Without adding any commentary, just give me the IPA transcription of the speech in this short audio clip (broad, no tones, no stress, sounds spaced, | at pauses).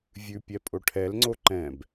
vʲ ʉ pʲ ɛ pʼ o ʈʰ ɛ l ŋ͡ǀ o ǃ ɛ̃ b